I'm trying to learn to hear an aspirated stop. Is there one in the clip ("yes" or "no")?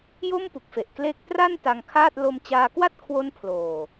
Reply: yes